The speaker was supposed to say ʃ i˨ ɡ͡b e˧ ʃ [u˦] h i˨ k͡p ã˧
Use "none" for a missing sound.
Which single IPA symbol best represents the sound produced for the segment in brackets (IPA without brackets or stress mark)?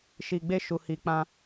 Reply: u˨